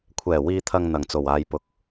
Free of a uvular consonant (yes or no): yes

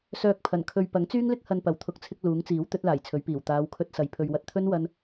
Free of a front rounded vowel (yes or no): no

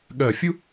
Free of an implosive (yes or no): no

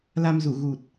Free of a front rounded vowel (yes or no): yes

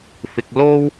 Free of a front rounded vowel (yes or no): yes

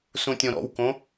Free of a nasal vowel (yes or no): no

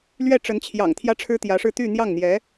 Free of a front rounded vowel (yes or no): no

